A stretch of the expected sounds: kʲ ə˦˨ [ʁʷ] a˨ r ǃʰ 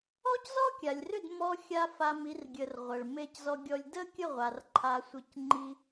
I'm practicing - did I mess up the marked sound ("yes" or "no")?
no